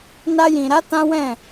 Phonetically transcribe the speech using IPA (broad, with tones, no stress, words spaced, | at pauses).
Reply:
na˧jĩ˨ɾa˨˦ tã˦wɛ̃˦˨